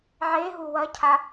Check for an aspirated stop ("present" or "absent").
present